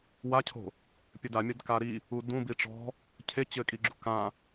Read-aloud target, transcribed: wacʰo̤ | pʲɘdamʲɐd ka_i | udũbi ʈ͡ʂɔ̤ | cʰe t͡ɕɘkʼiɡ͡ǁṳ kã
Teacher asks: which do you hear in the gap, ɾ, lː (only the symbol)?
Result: ɾ